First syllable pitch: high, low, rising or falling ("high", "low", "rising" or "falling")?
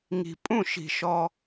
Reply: low